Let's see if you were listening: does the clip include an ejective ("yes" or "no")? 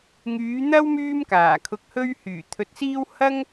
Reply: no